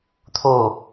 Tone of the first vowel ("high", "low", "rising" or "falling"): falling